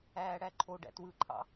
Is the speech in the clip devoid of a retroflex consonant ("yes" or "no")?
no